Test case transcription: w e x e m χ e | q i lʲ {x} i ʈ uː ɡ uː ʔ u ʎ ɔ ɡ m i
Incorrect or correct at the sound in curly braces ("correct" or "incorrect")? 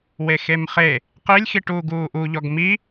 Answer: correct